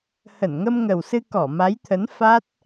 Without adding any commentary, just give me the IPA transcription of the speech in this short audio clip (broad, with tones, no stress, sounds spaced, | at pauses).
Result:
h ə˧˩ n ŋ ə˧ m ŋ ə˨˩ w s ɨ˧ k ɔ˧˩ m a˨˦ j t̪ʰ ə˨˦ n f a˦˥ t̚